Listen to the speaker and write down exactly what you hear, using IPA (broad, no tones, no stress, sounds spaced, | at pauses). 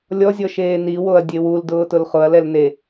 lʲ ɔ zʲ ɔ ʃ eː n i w o ɐ̯ dʲ e w u l d ʊː t ʊ l χ ʊ ɐ̯ l ɛ l n e